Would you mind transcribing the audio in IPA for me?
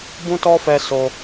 b ũ˦ t ɔ˦ f ɛ˧ s o˧

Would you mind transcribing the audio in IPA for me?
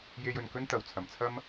j e˧ j ɵ˨ n k ɵ˥ n t̪ ɐ˨ w t͡sʰ ɐ˨˩ m t͡sʰ ɐ˥ m

